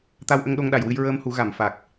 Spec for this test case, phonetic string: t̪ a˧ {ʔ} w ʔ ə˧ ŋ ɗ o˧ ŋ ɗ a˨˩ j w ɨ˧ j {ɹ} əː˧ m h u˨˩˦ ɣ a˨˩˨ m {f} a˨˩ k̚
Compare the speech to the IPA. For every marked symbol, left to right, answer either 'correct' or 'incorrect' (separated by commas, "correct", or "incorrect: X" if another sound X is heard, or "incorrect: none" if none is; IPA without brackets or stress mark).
incorrect: none, correct, correct